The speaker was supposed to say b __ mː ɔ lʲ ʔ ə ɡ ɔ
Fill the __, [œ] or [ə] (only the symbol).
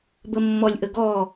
ə